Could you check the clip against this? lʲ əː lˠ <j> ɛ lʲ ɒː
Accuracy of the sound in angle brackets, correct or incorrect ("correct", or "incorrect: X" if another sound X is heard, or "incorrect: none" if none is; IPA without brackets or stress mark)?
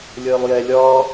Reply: correct